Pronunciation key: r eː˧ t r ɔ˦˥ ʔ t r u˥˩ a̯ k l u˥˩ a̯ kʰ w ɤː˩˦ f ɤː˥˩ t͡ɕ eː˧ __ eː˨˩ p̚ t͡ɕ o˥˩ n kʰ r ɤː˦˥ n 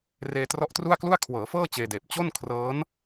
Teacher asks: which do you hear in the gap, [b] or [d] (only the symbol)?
d